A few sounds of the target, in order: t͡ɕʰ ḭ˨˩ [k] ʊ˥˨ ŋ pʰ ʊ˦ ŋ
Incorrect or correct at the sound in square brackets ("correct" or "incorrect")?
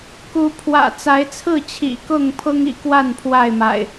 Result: correct